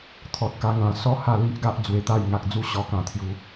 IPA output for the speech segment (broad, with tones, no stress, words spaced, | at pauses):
t̪ʰɔ˨t̚ka˧ŋã˨˩ sɔ˥˧ ha˥˧ li˦ʔɡa˦ʔ d͡zwe˧t̪a˥˧j ŋa˨k̚d͡zu˥˧ ɕɔ˧kã˨˩ t̪ʰju˨˦